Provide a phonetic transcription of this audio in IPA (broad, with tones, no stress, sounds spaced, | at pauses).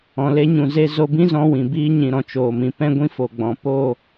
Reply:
ɔ̃˨ l e˧ ɲ ũ˨ z e˧ z o˧ b ĩ˦ z ɔ̃˧ w ĩ˨ b iː˧ ɲ ĩ˨ ɾ ɔ̃˨ t͡ʃ oː˨ m ĩ˨ p ɛ̃˦ ɡʷ ĩ˦ f o˨ ɡ͡b ɔ̃˨ p o˦˨